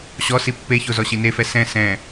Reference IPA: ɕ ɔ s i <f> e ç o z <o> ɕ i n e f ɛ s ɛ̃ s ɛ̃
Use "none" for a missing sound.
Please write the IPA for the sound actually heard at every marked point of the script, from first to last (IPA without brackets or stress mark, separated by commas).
pː, ɔ